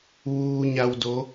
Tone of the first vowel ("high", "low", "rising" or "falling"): low